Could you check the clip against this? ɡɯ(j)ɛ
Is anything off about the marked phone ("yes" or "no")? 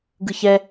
yes